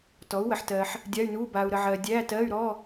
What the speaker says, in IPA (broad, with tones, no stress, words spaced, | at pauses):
tɔ˩˥u̯wə˨ħtɜ˨ħ | dʲa˧˥˧y̯nuː˧˥˧ baː˨u̯ɾə˨ʕɜː˨ dʲæː˧˥˧tɜː˧˥˧y̯ ɾɔ˧˥˧